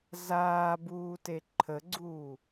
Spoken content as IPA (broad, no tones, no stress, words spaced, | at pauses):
zaːbuːte ǃʰəɡ͡ǀuː